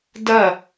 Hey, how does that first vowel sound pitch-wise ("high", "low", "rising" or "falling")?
falling